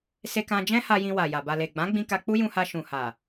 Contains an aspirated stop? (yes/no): no